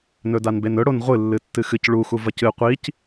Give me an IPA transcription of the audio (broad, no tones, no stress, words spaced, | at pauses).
nɵdanbenɵ ɽonʁʷɨ lːɨtːɨxɨc ɭuxu vɐcɨ qʷic